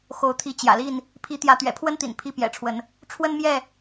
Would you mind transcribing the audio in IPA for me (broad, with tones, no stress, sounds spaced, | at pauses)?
x o˨˦ ʊ̯ t̪ʰ i˨˦ t͡ɕ j ä̰˨˩ l i˥˨ n | pʰ i˨˦ t̪ j ä˨˦ t̪ ɥ ɛ̰˨˩ pʰ w ə˦ n t̪ ḭ˨˩ n pʰ i˦ p j ɛ̰˨˩ ʈ͡ʂʰ w ə˨˦ n | ʈ͡ʂʰ w ə˦ n m j ɛ˥˨